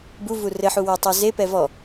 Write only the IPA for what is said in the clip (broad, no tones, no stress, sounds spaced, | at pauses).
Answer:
b u v u r ɘ ħ u w e tˤ u z e p ɛ v ɔ